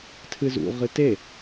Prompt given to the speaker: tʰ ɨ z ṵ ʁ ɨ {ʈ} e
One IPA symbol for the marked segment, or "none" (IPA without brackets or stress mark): t